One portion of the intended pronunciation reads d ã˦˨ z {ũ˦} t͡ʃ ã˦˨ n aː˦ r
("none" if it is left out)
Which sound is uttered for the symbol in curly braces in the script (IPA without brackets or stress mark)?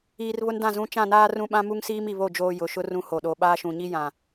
ũ˦